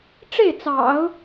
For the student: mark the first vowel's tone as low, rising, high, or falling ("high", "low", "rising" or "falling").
falling